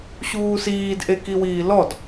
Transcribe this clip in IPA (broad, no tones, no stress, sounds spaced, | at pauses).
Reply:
ɕ uː s iː d ʔ e k i w iː l ɔ d